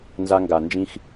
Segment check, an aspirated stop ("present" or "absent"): absent